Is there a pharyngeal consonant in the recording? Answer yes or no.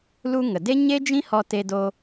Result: no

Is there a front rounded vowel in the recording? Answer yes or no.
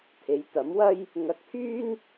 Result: yes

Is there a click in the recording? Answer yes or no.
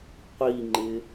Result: yes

